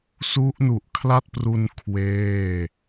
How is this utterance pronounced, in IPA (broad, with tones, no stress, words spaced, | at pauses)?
su˦˥ʔnu˨˩ʔ kʰla˥˩t̚pru˧n kʰweː˥˩